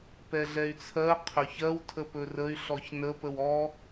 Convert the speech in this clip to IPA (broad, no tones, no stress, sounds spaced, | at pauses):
p ɛ ɮ ɛ y̯ t͡sʰ ɜ qʰ ɵ ç ɜ w tʰ ə p ɵ r ə y̯ ɬ ɔ ç n ə p ə w ɔ